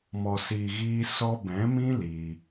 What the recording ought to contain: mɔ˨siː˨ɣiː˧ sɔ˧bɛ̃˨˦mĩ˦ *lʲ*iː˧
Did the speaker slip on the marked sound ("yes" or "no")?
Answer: yes